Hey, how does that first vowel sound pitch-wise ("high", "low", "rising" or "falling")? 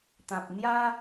low